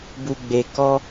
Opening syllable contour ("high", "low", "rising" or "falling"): low